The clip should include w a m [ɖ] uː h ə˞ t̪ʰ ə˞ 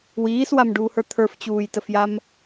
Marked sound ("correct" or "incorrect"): correct